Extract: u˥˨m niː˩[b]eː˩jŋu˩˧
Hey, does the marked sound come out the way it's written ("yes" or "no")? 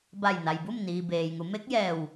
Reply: yes